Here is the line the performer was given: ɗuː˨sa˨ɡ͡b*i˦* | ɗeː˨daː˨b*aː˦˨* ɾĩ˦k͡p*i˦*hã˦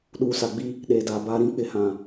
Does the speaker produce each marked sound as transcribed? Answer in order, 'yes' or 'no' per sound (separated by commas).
yes, no, no